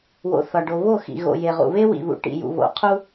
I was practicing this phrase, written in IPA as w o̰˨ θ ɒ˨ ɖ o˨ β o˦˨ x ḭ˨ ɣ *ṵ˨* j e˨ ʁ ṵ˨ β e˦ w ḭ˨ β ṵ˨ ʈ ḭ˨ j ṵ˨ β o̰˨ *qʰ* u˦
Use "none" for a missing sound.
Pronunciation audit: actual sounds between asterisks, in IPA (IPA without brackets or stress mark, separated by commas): o̰˨, qʰ